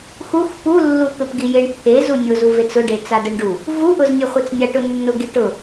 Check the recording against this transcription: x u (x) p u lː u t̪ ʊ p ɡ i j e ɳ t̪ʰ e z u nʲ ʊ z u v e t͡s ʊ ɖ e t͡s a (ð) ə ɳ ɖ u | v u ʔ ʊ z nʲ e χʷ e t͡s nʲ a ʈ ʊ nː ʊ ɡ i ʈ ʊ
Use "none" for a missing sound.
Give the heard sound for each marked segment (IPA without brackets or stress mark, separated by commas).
x, d